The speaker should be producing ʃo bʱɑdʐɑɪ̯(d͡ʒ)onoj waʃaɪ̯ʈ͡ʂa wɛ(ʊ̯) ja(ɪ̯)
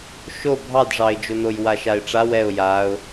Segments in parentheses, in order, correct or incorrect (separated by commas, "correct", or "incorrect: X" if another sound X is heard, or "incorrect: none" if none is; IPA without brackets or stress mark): correct, correct, incorrect: ʊ̯